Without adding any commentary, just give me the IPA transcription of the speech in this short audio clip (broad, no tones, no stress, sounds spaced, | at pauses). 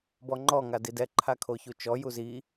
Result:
b ɔ ŋ͡ǃ ɔ ŋ a d i d ɛ ǃʰ a kʰ o ç u t͡ʃ ɔ j u z i